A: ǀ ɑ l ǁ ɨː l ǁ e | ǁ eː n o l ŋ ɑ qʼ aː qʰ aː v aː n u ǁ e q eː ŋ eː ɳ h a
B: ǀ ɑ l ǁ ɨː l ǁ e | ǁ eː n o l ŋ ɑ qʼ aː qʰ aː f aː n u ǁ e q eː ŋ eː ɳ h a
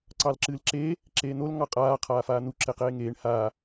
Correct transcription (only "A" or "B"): B